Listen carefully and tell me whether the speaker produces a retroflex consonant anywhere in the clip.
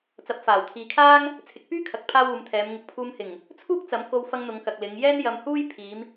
no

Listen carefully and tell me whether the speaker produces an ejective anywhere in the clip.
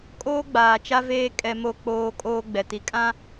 yes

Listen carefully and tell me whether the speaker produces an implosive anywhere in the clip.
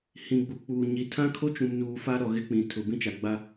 no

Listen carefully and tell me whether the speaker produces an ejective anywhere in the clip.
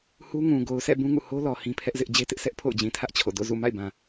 no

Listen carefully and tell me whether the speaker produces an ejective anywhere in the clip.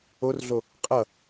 yes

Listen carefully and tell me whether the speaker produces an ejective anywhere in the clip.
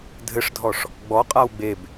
yes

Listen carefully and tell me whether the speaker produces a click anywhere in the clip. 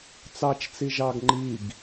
yes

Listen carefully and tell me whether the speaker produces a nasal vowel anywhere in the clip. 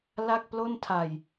no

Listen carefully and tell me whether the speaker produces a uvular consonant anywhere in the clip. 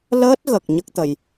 no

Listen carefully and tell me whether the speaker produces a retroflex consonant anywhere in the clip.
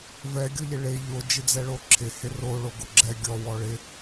yes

